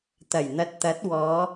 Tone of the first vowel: low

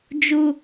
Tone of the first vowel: low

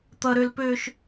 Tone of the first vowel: high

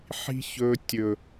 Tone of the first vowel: high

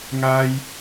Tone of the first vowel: high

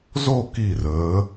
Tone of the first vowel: falling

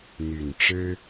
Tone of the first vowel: low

